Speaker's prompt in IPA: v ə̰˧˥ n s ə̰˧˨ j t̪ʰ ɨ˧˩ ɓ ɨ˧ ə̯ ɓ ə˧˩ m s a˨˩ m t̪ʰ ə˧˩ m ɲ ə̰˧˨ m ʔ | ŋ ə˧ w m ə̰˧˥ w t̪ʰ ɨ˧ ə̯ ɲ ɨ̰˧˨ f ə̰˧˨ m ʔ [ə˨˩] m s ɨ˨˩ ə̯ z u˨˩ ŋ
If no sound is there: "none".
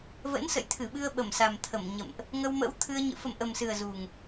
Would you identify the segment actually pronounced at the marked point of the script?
ə˨˩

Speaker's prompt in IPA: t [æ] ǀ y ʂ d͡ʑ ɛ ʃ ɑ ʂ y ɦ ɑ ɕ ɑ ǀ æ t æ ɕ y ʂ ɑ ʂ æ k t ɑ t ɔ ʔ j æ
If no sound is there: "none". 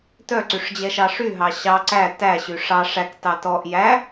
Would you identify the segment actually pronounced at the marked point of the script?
œ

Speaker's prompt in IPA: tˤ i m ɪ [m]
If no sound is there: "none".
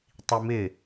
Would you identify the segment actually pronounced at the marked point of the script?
none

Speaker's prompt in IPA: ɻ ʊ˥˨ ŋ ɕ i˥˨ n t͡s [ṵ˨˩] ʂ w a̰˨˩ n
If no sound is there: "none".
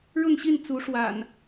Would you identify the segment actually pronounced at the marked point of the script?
u˨˦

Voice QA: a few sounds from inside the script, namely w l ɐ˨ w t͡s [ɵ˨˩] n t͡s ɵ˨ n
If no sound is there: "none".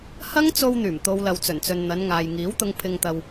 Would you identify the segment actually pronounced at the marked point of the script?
ɵ˨˩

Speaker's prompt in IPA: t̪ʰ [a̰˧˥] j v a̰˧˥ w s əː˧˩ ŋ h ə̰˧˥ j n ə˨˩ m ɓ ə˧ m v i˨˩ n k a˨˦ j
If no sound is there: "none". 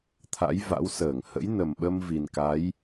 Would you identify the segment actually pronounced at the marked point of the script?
a̰˧˥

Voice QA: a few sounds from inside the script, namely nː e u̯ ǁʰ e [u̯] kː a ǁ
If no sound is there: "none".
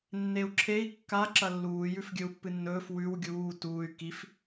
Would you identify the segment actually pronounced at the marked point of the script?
i̯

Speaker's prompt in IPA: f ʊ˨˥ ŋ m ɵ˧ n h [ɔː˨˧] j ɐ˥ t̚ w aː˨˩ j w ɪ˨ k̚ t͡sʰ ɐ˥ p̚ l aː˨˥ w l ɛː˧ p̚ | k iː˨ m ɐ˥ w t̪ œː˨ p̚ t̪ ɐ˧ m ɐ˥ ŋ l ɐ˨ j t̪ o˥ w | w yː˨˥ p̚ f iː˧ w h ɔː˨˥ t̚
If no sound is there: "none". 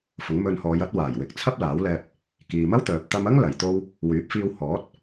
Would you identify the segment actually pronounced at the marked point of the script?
ɔː˨˧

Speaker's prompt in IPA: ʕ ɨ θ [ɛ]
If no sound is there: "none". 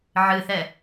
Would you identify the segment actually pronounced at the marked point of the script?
ɛ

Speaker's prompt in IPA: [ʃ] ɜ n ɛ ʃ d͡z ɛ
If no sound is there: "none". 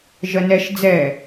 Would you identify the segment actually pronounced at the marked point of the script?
ʒ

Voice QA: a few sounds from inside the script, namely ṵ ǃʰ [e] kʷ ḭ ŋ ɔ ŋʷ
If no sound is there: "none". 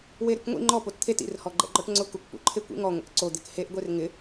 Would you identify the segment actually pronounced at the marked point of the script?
e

